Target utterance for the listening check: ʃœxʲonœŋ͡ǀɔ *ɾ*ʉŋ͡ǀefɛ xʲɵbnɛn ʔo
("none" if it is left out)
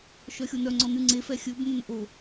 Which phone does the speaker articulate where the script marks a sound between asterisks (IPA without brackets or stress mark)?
n